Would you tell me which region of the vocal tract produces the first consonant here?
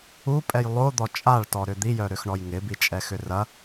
lips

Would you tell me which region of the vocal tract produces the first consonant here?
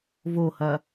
lips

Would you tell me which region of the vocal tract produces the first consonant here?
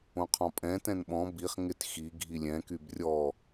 uvula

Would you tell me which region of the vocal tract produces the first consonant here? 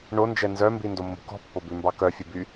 retroflex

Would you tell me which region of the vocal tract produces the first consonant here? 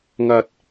velum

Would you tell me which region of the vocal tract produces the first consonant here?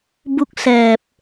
lips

